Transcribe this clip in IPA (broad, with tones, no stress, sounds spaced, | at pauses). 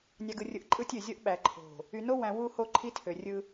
nʲ ɑ˨ ɡ ɯ˨ rʲ ɯ˨ ʔ ǃʼ ɯ˦ tʲ ø˨ zʲ o˦ ʔ ɓ æ˨ ǃʰ o̤˨ | y˨ n o˦ w æ̃˨ w u˦˨ h o˦˨ ǃʰ i˦ tʰ ø˨ rʲ ɯ˦